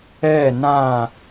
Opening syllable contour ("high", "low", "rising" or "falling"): falling